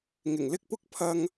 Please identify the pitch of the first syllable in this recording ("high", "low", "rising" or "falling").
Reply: low